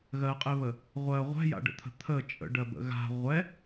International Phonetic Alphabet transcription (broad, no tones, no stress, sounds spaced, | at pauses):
ɣ ɜ qʼ ɪ β ə | ʁʷ ɜ ʁʷ ɛ̤ j a̰ ɖ ə̰ t̪ʰ ə̤ t̪ʰ ə t͡ʃʼ ə̰ ɖ ɜ b ə̰ ɣ a̤ ʁʷ ɛ